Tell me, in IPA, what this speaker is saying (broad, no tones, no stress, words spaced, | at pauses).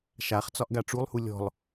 ʃaχ t͡sɒʔɡaʈ͡ʂulˠhu lʲɔ̤lˠ